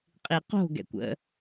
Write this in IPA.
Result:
qʼiqo̤ ɡɛ̰kʷə̰

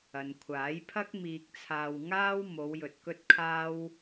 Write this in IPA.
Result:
ɐ˨nkʷʰaː˨˥jpʰɐ˥k̚ miː˧k̚t͡sʰaː˧wŋaː˥w mo˨˧wjɵ˨t̚ kɵ˥t̚kʰaː˥w

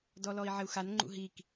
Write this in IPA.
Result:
dɔlɔi̯ʕɪu̯xan ŋ͡ǃṵɦik

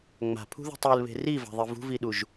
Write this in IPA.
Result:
ŋ͡ma̤pʰṳðṳ tˤɯlβe̤ riva̤ðˤi vṳviɗuʒ

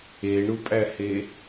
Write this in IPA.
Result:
eɳupʼæhe

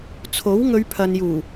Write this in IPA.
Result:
t͡sʰo˨˥wŋɵ˨˧ɥ pʰɐ˨njuː˨˩

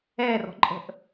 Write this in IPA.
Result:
ɛrɔ̤ǃʼə̤ʔ

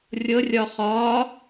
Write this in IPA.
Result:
rʲɤrʲɒ χɒ

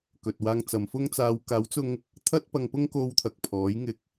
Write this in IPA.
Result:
kɵ˨t̚waː˧ŋ t͡sɐ˨˧mfʊ˥ŋt͡saː˧w kaː˨˥wt͡sʊ˧ŋ | t̪ʰɐ˥t̚pɐ˧ŋpʊ˥ŋ ko˧wt̪ʰɐ˨k̚ pʰɔː˨˥jŋɪ˧k̚

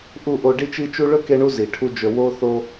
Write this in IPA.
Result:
ʔu˦˨ʔo˧ ɖi˦t͡ʃi˦t͡ʃu˦ ɭɵ˦ke˧ɳu˧ zi˨ʈʰu˦d͡ʒɵ˧ wo˦ θo˧

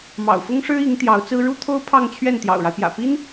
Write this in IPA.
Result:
mɑ̰˨˩ʊ̯fʊ˥ŋʂɻ̩˥i˧˥ŋ t̪jɑ˧˥ʊ̯t͡sɹ̩˥ ɻu˥t̪ʰo˥ʊ̯ pʰɑ˥˧ŋt͡ɕʰɥɛ˥˩n t̪jɑ̰˨˩ʊ̯ɻa˦ɪ̯pjä̰˨˩ pi˥n

